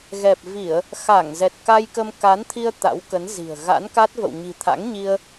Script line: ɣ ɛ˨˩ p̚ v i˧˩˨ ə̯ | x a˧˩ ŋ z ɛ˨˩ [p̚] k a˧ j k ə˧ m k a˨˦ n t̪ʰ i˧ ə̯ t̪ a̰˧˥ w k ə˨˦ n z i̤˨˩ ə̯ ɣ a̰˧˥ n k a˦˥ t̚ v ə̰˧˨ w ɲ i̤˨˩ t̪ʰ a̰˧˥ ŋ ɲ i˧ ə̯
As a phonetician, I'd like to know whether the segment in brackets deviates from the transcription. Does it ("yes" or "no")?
yes